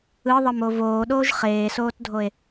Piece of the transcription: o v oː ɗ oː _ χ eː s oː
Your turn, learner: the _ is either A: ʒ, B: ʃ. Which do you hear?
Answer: A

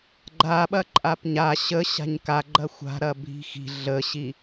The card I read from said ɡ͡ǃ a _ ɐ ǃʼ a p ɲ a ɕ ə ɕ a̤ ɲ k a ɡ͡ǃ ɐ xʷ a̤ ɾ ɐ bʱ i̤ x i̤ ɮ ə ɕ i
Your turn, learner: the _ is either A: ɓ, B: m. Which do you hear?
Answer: A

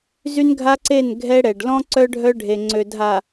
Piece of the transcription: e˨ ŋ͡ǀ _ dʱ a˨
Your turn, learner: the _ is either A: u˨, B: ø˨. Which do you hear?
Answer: B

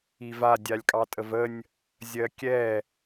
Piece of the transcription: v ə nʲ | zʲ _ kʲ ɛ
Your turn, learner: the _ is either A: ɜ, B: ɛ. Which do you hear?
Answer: A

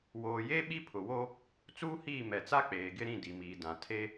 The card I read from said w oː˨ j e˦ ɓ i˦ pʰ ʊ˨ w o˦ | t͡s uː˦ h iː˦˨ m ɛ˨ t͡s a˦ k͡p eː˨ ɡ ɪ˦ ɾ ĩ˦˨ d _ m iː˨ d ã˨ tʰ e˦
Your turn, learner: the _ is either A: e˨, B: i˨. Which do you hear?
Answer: B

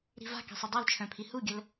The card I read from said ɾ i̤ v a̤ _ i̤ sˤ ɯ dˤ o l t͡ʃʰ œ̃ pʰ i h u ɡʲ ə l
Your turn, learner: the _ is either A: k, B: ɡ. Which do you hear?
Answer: A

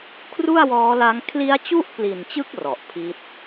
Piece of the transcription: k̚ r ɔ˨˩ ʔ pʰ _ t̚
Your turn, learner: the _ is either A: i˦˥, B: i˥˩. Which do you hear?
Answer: A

